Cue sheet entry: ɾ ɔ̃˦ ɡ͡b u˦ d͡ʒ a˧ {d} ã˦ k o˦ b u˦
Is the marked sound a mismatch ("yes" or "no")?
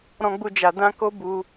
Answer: no